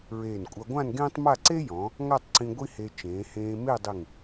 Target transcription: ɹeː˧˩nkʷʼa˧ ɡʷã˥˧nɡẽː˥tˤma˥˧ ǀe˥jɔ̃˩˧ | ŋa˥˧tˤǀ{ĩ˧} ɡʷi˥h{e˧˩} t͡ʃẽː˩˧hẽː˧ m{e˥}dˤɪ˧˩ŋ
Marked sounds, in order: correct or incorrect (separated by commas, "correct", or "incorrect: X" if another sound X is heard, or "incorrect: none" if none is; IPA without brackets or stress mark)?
correct, incorrect: e˧, incorrect: e˥˧